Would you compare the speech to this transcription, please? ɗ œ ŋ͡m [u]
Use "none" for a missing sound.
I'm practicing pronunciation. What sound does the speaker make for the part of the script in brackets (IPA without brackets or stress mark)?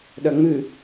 ʉ